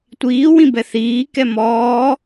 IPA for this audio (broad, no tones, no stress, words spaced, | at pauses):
tʷiːwĩbɛ θiːkɛ mɔː